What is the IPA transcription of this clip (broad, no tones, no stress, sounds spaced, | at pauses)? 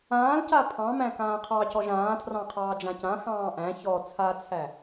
ãː l c a pʰ ɑ̃ m æ̃ k ãː qʰ ɑ c ɔ ʒ ãː tʰ r ɑ̃ qʰ ɑː d͡ʒ ã c ã x ɑ̃ː ʔ æ̃ ç ɔ t͡sʰ a t͡sʰ æ